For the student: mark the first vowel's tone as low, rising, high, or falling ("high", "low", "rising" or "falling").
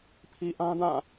low